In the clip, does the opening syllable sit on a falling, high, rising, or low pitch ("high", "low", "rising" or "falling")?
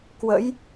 rising